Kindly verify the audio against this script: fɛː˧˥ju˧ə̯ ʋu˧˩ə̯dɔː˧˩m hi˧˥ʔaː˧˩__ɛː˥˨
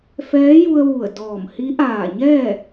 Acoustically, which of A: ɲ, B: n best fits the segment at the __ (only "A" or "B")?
A